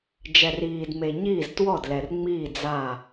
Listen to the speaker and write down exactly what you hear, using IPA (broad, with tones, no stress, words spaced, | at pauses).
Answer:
d͡ʒɛ˨riː˨dme˨ ɲiː˥˨ztwɔ˥˨dlɛ˨r ŋ͡miː˥˨ d͡za˥˨